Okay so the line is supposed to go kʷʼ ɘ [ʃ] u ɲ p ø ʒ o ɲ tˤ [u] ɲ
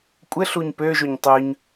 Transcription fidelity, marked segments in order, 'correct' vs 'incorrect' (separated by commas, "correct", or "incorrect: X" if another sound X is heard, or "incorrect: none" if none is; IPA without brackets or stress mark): incorrect: ɬ, incorrect: ø